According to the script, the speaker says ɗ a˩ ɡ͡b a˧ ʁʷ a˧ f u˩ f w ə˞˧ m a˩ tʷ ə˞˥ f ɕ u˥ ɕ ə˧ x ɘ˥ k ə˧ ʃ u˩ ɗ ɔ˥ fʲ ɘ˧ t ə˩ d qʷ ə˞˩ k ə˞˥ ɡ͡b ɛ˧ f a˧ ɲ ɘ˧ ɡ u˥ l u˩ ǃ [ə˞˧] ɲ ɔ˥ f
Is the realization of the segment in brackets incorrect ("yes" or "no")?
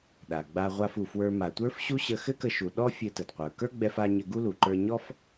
no